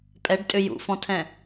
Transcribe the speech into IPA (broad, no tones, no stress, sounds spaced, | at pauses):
pʼ ɛ ɖ tʼ ʏ j ṵ f ɔ̃ tʰ ɛ̃